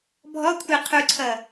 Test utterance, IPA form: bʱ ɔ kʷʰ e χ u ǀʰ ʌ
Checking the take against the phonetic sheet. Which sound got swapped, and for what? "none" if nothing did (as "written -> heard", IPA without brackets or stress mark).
χ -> qʰ